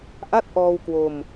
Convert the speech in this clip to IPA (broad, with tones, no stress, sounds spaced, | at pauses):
ʔ a˥˩ t̚ ʔ ɔː˧ w k w o˧ m